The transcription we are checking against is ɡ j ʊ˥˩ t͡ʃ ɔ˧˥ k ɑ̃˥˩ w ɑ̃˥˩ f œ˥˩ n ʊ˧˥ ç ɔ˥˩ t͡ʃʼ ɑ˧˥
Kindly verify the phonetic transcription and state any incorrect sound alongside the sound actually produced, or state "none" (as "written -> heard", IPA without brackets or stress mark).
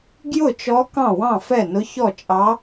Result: œ˥˩ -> ɛ˥˩